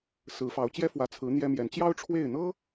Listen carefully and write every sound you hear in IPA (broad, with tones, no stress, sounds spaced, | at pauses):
s ɹ̩˧˥ f ɑ˧˥ ʊ̯ t͡ɕ j ɛ˥ f w ä˧˥ t͡sʰ ɹ̩˧˥ n̪ j ɛ˥ m j ɛ˧˥ n t͡ɕ j ɑ˥ ʊ̯ ʈ͡ʂʰ w e˥˩ ɪ̯ n̪ ɤ˥